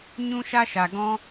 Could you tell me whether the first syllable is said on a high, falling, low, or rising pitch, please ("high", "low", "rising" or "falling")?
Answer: high